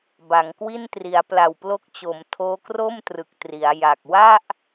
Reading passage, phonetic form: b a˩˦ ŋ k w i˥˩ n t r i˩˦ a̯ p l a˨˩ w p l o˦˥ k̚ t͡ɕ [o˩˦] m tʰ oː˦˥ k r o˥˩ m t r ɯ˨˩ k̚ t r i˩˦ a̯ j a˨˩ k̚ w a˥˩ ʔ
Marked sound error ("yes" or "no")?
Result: no